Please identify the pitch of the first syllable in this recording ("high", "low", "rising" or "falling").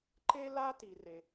high